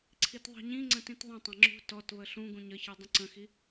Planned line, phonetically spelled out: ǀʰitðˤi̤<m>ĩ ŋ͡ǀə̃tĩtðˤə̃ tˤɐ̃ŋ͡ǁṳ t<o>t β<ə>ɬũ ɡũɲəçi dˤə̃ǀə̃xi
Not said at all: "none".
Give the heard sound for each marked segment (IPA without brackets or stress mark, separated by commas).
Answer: ɲ, ɔ, ə